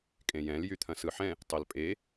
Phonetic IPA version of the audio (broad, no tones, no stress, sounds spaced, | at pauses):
kʼ ẽ j ɛ̃ l j y t̪ʰ ɐ̃ s ɯ ħ ɛ̃ | tˤ ɘ l pʼ e